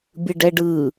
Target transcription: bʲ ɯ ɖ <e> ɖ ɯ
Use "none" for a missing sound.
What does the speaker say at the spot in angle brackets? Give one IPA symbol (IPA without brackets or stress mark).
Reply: ɛ